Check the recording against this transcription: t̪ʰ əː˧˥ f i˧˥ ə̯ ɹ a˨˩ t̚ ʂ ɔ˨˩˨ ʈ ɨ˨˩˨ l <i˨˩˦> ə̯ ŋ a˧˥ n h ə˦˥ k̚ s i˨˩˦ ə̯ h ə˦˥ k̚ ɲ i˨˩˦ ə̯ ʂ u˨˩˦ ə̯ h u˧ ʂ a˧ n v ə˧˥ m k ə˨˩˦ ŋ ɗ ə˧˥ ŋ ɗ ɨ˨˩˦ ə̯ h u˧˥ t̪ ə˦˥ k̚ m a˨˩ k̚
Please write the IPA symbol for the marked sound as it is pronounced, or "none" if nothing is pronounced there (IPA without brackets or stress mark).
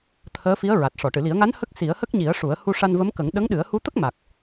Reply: i˨˩˦